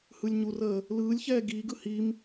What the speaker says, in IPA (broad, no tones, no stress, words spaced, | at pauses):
hɯlʲɲurəː | lɯːlʲçɛː ɡiːɡɯ him